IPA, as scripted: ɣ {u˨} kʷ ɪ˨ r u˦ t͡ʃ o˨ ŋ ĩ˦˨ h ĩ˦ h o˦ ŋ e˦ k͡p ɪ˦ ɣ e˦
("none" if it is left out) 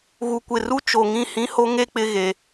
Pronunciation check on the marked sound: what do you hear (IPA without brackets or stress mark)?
u˨